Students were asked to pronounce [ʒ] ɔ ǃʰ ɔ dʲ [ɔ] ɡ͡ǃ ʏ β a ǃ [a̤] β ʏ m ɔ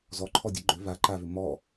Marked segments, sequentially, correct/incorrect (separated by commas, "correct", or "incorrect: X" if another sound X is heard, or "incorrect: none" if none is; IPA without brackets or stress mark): incorrect: z, incorrect: ə, incorrect: a